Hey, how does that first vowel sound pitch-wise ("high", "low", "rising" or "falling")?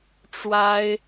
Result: high